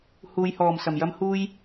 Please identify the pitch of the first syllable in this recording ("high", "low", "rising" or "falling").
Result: low